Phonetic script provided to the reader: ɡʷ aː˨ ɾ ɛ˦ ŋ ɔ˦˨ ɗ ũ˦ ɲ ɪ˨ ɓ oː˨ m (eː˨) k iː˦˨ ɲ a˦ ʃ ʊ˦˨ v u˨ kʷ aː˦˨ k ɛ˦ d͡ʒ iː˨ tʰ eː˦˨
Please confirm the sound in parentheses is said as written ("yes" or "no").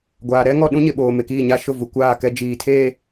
no